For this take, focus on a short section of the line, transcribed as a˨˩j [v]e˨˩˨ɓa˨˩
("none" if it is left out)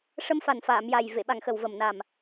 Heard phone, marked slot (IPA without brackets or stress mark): v